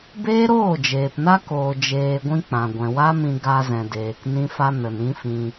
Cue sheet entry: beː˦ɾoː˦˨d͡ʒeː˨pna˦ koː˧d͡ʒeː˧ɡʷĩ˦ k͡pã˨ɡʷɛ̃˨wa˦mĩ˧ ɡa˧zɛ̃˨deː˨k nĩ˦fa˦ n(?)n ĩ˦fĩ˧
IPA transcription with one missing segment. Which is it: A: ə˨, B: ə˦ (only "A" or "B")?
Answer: A